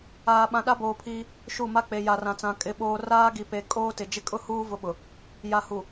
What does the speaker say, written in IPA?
aː˨ɓã˨ɗa˦ boː˨pʰiː˦ | ʃu˦˨ ma˦k͡pe˨ ja˨rã˨t͡sã˨ kʼɪ˨ɓoː˨ raː˦ɡi˨pe˨ kʼoː˦tɪ˨d͡ʒɪ˦ kʼʊ˦huː˦ vʊ˦ɓʊ˨ | ja˨hu˨

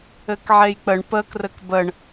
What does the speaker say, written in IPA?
ɘkʕejk͡pəɳ pə krɘkbəɳ

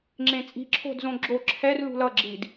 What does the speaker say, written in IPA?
ŋ͡ǁẽt͡sʼi̤ ǁʰo̤dzõɡ͡ǁo ǁʰɛr lṳlʌ ɡ͡ǁid

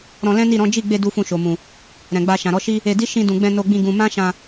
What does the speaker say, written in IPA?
ɾɔ̃˧lɛ̃˦ni˦˨ɾɔ̃˨˦ d͡ʒi˦˨ɡ͡be˧ du˦fũ˦˨ʃo˨mũ˨ | ɾɛ̃˨ɡ͡ba˧ ʃã˨ɾɔ˨˦ʃi˦ | e˧di˦ ʃĩ˧dũ˨ɡ͡bɛ̃˧ no˧ɡ͡bĩ˧ ɡũ˧ mã˦ʃã˧

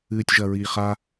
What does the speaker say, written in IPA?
ɨːtʲʒɐɹiːχa

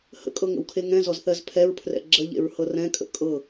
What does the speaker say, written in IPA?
hə̰kʼɤŋə̰wkʰe ŋɛ̃zɔzθɜz pʰɛɹpʰrɛ̰ ɡ͡ǁəʎḛɹhɤ rɛ̃kʼə̰ kʼɤ

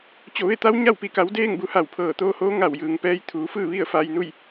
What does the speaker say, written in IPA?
t͡ɕo˧˩ʋe˥˨ t̪a˧˥w ɲa˥˨wpi˧˩ka˩˧wdeː˥˨ŋ bu˩˧ha˧˩wpʰɤː˧˩ t̪oː˧hoː˧˥ ŋa˧˩wjɯː˩ŋpɛː˧j t̪ʰuː˩˧fɯː˥˨ʋi˥˨ə̯ fa˧jnu˥˨j

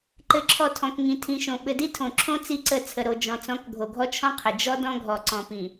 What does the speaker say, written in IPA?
ǃɘ˨ǁʰɔ˨ tʰɔ̃˨kŋĩ˨tʰĩ˨ʃõ˨ ɓɘ˨di˦tʰõ˨ǁʰõ˦ t͡si˦ǀə˦˨ t͡sʰə˨ɾo˨ d͡ʒɔ̃˨t͡sɔ̃˨˦k ɡʱo˨ɡʱɔ˦t͡ʃʰɔ̃˦ qʰə˨ d͡ʒɔ˦ dɔ̃˦ɡʱɔ˨ǀɔ̃˨ pĩ˨

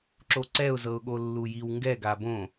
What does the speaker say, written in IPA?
ǁoǀɛʊ̯zɤʊ̯ɠo lːujiwŋɡɛ ɡabõ

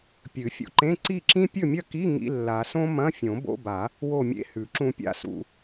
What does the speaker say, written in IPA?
pʲɨ˨˩˦fʲṵ˧ǃẽ˧˥˧ ǀi˥˨ǁĩ˥ pʲɵ˥˨mʲɐ˥˨ki˧˥˧ ŋḭ˧˥˧lːa˨˩˦sõ˥ mɐ̃˧˥˧fʲõ˨˩˦ bo̰˧˥˧ba˨˩˦ | wo˥˨mʲḛ˥hʉ˨˩˦ ǁũ˧pʲa̰˥˨sṵ˧

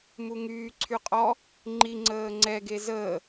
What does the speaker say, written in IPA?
muŋyː ǀʰyqʼɔ | ŋ͡ǃi ŋ͡ǀəːŋ͡ǀɛ ɡezəː

